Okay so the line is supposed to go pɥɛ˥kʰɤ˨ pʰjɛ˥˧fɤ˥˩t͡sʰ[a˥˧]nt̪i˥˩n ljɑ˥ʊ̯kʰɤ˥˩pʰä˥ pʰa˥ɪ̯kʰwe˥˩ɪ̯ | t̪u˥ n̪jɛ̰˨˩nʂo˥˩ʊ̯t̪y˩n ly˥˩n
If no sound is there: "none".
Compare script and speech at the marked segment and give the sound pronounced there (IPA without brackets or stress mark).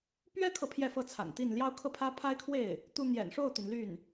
a̰˨˩